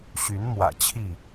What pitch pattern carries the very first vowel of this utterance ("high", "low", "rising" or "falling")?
rising